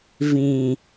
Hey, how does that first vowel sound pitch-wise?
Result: low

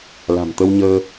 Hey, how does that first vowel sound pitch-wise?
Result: low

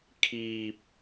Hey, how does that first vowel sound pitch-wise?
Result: low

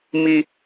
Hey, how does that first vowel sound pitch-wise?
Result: low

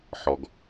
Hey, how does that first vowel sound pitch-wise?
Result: low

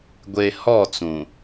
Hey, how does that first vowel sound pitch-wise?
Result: low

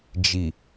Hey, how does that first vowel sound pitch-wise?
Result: low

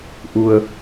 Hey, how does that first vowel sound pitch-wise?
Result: low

